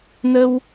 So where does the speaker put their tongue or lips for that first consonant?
tongue tip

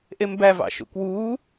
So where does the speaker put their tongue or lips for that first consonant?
throat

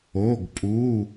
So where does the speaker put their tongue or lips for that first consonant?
velum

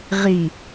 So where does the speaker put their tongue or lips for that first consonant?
uvula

